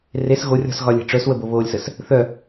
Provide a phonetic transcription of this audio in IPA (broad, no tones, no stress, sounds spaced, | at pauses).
r e s ɣ o rʲ ɔ̤ s ɣ ɒ lʲ e̤ ʈ͡ʂ œ s w ə b o β oː lʲ s ə s | θ œ